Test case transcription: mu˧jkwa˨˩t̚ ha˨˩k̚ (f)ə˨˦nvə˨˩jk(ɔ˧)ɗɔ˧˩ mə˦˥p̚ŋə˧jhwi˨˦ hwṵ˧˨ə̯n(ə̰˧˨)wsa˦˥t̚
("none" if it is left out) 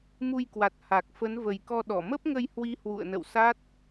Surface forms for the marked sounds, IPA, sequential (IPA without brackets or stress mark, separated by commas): f, ɔ˧, ə̰˧˨